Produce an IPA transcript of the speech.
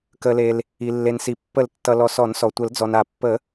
k ə˩ l e˩ l | i˩ lː e˩ n s i˩ pː ə˨˩˦ l tː ʌ˩ l ɔ˩ s ɔ˨˩˦ n s ɔ˩ tʷ ə˨˩˦ l d͡z ɔ˩ n a˨˩˦ pː ə˨˩˦

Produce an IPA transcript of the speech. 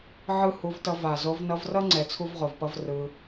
ʕ ɯ˦˨ h u˧ v t ʌ˧ v a˨ z o˧ v n ʌ˧ v r ʌ˦ ŋ͡ǀ ɛ˧ t͡sʰ u˦ v ʁ o˨ v p ʌ˦ v r ɯ˧

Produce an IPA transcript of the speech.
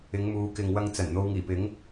ɪ˨˧ ŋ m uː˨˧ k ɪ˨ ŋ w ɐ˧ ŋ t͡s ɐ˨˩ n n̪ o˧ w ŋ iː˨˩ p ɪ˨˥ ŋ

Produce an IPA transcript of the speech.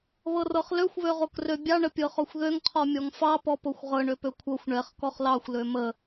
β ɤ r ɤ χ l ø xʷ β ø ʁ o k r ø bʲ ɑ ɳ ə pʲ ɤ χ ɔ xʷ ð ø ŋ qʰ ɔ mʲ ɔ ŋ f ɑ p ɔ p o xʷ ʁ ɤ ɳ ø p ø kʷʰ ɤ xʷ ɳ ɛ χ k ɔ χ l ɑ xʷ l ø m ə

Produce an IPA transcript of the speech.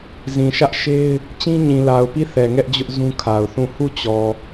z ĩ˨ ʃ ä˦ ʔ ʃ e˦ ɪ̯ | t͡ɕ ĩ˦ ɲ ĩ˨ l a˨ ʊ̯ p i˦˨ θ ɛ˨ ŋ ɛ˦ ʔ d͡ʑ ʊ˦ ʔ z ũ˦ kʰ a˨ ʊ̯ θ ũ˦˨ h u˦˨ t͡ɕ ɔ˨

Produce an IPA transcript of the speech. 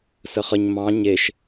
s ə χ ə ɲ m ɑ̃ ɲ e ʃ

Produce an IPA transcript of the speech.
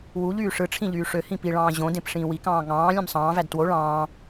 w u ʎ yː ʂ ɯ ʈ͡ʂʰ ĩ ʎ yː ʂ ø h ĩ p i ɭ ɑ̃ː ʑ õ d ẽ p ʂ ĩː w i k ɑ̃ː ŋ ɑ̃ː lʲ ẽ m sˤ ɑ̃ː v æ d t w o ɭ ɑ̃ː

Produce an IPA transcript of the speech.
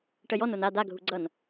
ʈ ə j ɔ n o n a d a ɡʱ u ɡ͡ǀ ʌ n

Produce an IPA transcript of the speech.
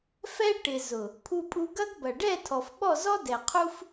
f ɛ˦ ʈ ɪ˨ z ʊ˨ | pʰ u˧ pʼ u˧ ɡ ɐ˦ ɡ b ɐ˨ ɖ ɛ˦˨ tʰ ɔ˨ f ɓ ɔ˦˨ z ɔ˦ d ɛ˨ qʰ u˦ f

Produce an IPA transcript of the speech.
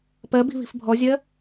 p ɜ b i̤ β i̤ f bʱ ɔ zʲ ɜ

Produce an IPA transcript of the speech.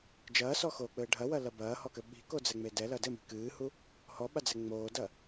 d͡ʒ ɐː s ɔ x oː k͡p ɘː ɖʱ ɐ w ɐ l ɐ b ɐː h ɔ k ɘ ɓ i̤ k o d͡z ɛ ŋ͡m e d ɛ l ɐ d ɘ m i̤ k ɨː h u | h ɔ ɓ a d͡z ɛ ŋ͡m oː d ɐ

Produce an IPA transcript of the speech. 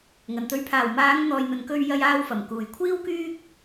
ŋ ɐ˨ n t̪ ɵ˨ ɥ pʰ aː˨˩ w m aː˨˧ ŋ n̪ ɔː˨ j n̪ ɵ˨ n k ɵ˧ ɥ j ɐ˧ j aː˧ w f ɐ˨˩ m k uː˨˩ j kʷʰ iː˥ w k yː˥ k̚

